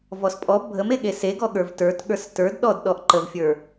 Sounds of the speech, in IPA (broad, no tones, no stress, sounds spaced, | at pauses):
v ɔ s pʼ ɔ bʱ ə m e ɠ e s e ɡ ɔ ɠ ə˞ v t ə˞ t ɠ ə˞ s t ə˞ d ɗ ɔ d ɗ ɔ ʔ ǃ ə v fʲ ə˞